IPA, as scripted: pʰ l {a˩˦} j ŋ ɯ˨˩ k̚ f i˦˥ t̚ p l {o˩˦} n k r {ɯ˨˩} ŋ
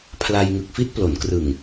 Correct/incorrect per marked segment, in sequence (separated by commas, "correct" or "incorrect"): incorrect, correct, correct